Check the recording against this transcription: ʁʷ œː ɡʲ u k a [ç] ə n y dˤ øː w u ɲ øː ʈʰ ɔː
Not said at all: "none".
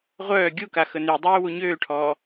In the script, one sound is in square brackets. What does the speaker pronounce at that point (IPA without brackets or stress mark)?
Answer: x